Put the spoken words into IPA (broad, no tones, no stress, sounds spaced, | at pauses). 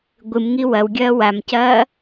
ɡʷ ɨ m ŋ i w ɐ w ɡʲ ɐː w a m c ɐː